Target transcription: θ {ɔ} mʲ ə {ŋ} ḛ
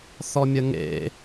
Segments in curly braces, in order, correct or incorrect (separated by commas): correct, correct